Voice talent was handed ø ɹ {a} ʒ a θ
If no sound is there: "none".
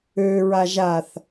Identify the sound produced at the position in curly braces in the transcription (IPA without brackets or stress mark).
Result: a